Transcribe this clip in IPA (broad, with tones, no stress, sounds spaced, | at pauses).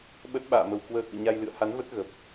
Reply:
ɓ ə˦˥ t̚ ɓ a̰ː˧˨ m ə˨˩ w k w əː˧ k ɨ̰˧˨ ɲ a˧ j l ɨ̰˧˨ ə̯ h a˨˦ n v ə˦˥ t̚ ɣ ə˨˩ p̚